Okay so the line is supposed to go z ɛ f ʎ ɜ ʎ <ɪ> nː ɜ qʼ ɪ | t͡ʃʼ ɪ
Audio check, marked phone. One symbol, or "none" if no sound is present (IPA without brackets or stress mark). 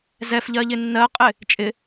ɪ